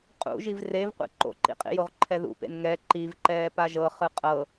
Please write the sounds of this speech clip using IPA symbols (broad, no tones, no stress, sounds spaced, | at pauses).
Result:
qʼ ṵ ʒ i v r e v qʷ ḭ ǃ o̰ ǃ ḭ qʼ ḭ j o ʁ ǃʰ ɛ ð ṵ p ḛ n ŋ ɛ ǃ i v ǃ ɛː p a ʒ ɤ χ ɯ qʼ ɤ